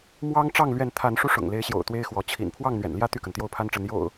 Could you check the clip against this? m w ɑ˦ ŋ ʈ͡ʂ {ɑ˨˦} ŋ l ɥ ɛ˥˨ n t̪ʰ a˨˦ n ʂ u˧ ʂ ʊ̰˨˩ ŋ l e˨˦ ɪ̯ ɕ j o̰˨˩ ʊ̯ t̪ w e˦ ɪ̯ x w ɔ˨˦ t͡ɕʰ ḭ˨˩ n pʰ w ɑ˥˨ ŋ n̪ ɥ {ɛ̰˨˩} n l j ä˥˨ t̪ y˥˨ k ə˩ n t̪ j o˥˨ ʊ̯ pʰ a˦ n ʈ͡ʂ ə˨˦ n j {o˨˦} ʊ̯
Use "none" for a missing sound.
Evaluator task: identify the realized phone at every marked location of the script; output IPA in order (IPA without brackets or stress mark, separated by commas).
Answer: ɑ˥˨, ɛ̰˨˩, o̰˨˩